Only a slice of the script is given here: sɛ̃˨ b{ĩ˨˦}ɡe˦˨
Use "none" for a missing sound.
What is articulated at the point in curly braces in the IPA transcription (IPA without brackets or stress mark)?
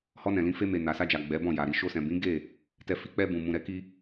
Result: ĩ˨˦